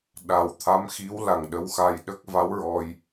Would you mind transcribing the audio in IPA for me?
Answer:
ɗ a˨˩ w t̪ʰ a˧˥ m x i˧˥ w l a˨˩ ŋ ɗ ə˧ w x a˧ j ɗ ə˦˥ k̚ v a˧˥ w ɹ ɔ˧ j

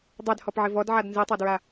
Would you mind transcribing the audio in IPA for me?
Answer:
dˤ ɛ d h ɔ p ʕ ɪ v ɔ d ʕ a d n z i tˤ a d ɹ a

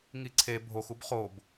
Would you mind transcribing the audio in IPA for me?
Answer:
ŋ i ǀʰ e bʱ o x u b χ o b

